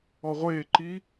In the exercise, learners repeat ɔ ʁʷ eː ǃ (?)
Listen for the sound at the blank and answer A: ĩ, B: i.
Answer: B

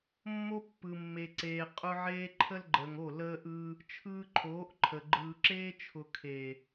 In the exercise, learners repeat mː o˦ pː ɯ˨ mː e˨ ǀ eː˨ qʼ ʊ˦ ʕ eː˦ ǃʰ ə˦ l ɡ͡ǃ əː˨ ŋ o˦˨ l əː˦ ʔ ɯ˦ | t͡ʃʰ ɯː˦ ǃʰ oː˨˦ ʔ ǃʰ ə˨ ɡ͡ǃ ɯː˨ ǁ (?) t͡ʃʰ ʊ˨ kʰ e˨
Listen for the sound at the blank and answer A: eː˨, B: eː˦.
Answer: B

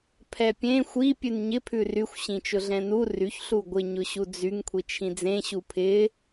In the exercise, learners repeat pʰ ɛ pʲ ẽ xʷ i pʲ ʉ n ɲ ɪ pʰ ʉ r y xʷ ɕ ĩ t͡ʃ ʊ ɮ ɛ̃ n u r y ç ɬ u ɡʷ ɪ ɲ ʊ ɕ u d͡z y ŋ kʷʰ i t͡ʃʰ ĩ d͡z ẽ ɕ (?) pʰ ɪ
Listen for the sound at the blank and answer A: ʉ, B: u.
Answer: B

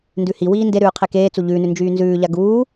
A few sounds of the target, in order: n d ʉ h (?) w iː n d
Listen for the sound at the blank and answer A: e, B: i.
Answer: B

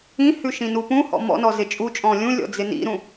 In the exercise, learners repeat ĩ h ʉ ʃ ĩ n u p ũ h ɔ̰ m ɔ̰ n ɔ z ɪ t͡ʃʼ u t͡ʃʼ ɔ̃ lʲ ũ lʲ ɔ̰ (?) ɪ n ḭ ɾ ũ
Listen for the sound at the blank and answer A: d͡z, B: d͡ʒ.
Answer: A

